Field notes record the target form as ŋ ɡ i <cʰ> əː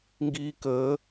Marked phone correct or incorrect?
incorrect